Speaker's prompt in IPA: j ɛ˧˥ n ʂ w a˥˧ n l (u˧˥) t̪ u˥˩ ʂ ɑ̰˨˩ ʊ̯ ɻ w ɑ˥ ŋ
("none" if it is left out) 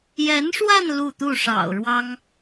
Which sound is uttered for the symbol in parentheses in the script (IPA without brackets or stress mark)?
u˥˧